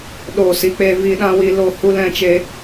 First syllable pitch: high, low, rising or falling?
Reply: falling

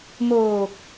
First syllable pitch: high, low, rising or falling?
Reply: low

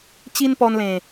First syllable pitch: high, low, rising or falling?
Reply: high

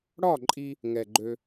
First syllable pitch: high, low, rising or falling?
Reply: falling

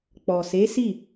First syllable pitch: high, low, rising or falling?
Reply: low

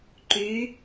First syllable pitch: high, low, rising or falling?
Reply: rising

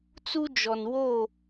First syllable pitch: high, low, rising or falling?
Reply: high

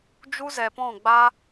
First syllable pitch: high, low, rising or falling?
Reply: high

